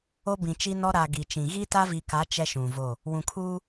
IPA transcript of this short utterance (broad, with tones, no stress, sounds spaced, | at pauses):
o˦ b ĩ˨ t͡ʃ i˦ n ɔ˦ ɾ a˨ ɡ i˨ t͡ʃ ĩ˨ ɣ i˦ t a˦ v i˨ k a˨˦ t͡ʃ ɛ˦ ʃ ũ˨ v o˦˨ | w ũ˨ kʰ uː˦